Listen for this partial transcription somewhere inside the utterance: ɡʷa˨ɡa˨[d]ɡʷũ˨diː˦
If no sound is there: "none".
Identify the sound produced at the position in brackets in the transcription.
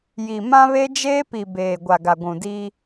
none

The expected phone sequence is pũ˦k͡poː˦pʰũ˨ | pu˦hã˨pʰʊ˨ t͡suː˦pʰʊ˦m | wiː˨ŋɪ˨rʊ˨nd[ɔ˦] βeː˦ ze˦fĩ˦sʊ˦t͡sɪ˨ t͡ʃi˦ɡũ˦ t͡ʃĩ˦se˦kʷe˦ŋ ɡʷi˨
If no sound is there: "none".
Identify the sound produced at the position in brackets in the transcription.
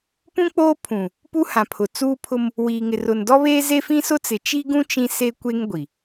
ɔ˦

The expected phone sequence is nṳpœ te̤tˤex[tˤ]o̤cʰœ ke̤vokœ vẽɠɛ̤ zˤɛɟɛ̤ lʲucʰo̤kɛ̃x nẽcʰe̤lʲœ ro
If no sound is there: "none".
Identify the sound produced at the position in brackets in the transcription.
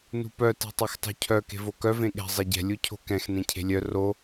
tˤ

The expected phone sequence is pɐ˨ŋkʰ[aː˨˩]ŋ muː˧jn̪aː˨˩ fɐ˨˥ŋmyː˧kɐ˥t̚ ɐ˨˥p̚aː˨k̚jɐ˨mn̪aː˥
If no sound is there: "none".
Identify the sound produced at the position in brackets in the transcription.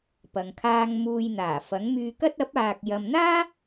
aː˧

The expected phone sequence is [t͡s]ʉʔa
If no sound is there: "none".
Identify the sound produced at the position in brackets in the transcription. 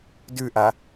d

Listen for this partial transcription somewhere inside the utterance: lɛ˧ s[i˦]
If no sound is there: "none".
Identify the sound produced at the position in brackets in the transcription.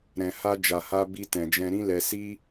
i˦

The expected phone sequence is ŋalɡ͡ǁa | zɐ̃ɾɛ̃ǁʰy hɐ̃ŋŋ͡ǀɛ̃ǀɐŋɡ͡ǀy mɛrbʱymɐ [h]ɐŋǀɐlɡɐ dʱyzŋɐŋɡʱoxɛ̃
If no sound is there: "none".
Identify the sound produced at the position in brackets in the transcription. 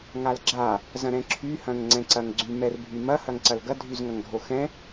h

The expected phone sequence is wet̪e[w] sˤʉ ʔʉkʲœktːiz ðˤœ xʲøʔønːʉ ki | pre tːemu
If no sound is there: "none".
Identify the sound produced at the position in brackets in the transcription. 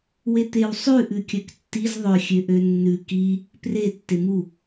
w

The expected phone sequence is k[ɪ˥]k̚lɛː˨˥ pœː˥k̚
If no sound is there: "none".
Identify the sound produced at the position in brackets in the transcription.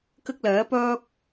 ɪ˥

